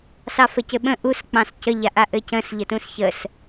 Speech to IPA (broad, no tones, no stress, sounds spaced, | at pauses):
s ɑ f ə c ɘ ɓ ə̃ ʔ u s k͡p ɑ̃ s c ə ʎ a ʔ a ʔ ɘ c ə̃ s ʎ ə t ũ s ç ə s